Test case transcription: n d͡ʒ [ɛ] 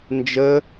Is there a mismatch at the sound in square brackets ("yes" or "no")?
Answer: yes